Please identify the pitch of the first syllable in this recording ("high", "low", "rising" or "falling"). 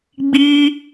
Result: high